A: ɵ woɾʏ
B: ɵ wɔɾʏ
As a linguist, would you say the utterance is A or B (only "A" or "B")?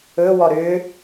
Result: B